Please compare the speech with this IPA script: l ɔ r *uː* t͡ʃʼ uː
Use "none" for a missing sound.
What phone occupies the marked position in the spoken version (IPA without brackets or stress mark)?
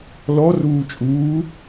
uː